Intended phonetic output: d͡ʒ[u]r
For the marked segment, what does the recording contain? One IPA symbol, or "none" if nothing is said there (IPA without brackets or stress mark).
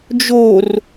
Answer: o